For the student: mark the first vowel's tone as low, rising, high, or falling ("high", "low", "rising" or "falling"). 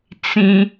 high